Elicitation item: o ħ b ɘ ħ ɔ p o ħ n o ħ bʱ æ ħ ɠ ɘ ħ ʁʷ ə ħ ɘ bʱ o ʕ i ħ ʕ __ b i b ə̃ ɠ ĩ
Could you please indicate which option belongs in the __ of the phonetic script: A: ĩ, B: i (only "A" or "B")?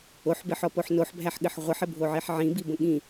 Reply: A